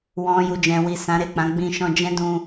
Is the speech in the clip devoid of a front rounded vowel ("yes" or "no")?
yes